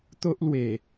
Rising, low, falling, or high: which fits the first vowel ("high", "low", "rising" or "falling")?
high